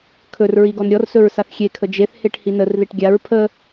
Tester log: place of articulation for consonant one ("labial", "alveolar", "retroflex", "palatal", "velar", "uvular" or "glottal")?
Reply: velar